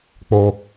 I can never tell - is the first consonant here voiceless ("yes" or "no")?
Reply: yes